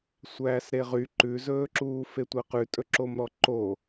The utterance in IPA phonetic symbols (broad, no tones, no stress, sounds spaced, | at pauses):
sʷ æː s ɾ e ʁ y ǃ ʉ z ɵː ǁ uː f e tʷ æ q ʉ tʼ ɵ ǁ o m ɾ ɔ ǃ o